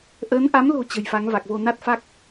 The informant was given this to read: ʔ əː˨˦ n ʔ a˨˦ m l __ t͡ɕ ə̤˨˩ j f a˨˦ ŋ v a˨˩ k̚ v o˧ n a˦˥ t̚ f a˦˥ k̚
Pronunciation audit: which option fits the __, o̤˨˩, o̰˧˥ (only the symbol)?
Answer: o̤˨˩